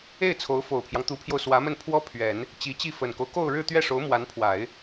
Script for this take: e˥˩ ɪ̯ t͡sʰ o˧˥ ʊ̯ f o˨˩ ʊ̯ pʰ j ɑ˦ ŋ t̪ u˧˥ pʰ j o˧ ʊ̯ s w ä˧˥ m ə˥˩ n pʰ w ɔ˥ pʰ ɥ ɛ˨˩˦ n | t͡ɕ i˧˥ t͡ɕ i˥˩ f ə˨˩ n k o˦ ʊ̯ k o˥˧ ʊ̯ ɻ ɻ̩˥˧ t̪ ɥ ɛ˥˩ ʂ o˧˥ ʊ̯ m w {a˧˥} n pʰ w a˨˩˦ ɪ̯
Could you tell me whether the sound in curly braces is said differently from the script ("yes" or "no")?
no